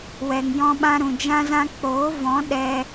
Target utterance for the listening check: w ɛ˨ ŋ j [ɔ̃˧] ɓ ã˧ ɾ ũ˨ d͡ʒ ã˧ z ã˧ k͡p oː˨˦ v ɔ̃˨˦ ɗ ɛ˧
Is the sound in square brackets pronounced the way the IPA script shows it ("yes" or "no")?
yes